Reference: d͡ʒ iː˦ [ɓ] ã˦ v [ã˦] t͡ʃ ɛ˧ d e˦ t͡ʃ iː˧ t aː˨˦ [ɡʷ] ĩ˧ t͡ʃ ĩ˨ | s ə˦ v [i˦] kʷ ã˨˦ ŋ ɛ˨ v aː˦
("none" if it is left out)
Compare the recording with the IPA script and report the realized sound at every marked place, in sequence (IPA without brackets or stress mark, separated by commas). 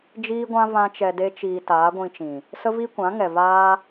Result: ɡʷ, ã˦, ɡʷ, i˦